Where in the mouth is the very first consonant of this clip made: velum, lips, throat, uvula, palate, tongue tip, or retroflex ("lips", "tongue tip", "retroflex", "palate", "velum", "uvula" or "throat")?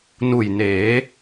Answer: tongue tip